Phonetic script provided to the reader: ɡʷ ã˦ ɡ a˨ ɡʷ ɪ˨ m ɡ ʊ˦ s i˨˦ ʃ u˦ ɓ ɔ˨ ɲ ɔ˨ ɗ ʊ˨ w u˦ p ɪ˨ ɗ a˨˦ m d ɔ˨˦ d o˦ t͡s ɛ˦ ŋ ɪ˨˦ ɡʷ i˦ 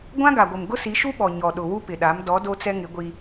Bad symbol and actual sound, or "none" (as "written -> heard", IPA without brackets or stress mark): none